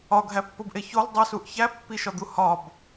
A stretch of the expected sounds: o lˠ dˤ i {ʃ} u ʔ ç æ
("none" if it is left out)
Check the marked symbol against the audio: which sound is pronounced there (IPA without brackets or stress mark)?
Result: s